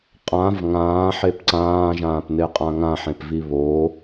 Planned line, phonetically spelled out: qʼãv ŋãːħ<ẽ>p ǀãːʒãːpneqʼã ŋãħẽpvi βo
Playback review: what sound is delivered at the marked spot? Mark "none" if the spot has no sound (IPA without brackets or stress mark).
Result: e